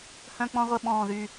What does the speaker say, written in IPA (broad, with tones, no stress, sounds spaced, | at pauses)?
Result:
h œ̃˥ k͡p ɔ̃˥ ʁʷ ə˥˧ ɓ ɔ̃ː˥˧ ð y˥˧